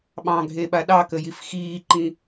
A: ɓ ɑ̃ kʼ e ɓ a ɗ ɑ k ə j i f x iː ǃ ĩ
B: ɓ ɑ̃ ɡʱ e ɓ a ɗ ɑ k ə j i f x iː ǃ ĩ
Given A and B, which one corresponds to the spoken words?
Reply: B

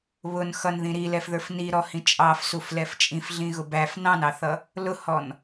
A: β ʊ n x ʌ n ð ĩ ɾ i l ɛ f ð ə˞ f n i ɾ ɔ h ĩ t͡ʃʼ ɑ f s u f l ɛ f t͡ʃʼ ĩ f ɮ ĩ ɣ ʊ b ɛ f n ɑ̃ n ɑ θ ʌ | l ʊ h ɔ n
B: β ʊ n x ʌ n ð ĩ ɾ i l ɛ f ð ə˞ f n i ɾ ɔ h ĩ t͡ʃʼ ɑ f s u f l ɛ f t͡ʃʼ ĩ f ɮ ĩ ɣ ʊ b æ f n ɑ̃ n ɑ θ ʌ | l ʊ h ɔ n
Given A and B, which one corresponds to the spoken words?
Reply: B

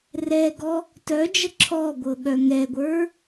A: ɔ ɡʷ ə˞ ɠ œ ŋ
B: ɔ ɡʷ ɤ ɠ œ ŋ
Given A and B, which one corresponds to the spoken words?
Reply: B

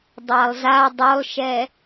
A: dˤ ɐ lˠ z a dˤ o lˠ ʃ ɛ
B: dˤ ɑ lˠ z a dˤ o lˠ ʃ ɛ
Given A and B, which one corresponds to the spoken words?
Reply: B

